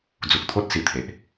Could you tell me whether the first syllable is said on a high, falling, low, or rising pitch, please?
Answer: low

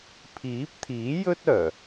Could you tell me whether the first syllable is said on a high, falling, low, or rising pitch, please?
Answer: rising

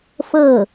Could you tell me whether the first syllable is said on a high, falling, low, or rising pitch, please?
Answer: falling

